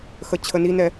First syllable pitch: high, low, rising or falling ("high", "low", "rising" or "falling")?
low